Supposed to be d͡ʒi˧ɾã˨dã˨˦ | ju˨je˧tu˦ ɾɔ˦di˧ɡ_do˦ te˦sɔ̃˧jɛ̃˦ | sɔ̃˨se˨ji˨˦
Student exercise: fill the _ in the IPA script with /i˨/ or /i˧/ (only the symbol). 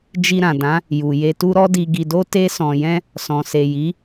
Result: i˧